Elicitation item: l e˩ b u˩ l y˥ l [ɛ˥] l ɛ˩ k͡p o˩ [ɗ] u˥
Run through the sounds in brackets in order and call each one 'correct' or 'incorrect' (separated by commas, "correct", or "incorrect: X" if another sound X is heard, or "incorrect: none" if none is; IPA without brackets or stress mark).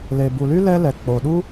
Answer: correct, correct